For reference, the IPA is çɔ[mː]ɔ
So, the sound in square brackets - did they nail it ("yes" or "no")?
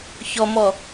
no